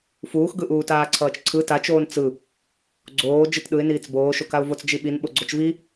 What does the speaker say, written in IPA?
fuːxɡɯʔuːt aːǀʰʌːt͡ʃǀʰɯ tat͡ʃoːn t͡sɯ | ɡ͡ǀoː d͡ʒɯtɗɯɪ̯niːt͡s boːʃokaʊ̯vot͡s d͡ʒiɓin ɓoɡ͡ǀot͡ʃvi

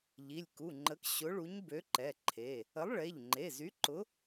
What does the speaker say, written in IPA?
ʎi˩˧˩lʲku˩˧˩ŋ͡ǃə˨˥k ɕʊ˨˥ ɭu˨˥ɲbø˨˥ǃɛ˩˧˩ǃʰe˩˧˩ | ə˨˥lˠɭe˩˧˩ʎ ŋ͡ǃe˩˧˩zy˨˥ǃʊ˨˥

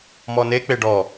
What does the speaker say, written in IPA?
mɔne k͡peɖɔ

